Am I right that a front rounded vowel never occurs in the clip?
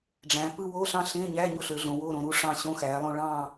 no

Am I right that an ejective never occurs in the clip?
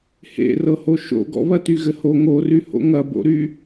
yes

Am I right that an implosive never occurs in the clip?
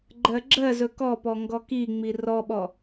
no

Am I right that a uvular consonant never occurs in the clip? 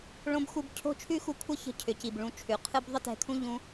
no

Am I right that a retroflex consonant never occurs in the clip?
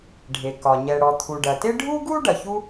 no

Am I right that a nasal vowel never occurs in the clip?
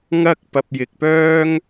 yes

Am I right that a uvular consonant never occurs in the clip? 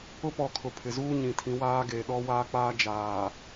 yes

